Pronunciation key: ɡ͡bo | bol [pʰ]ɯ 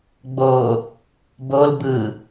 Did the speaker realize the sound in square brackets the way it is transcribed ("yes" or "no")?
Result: no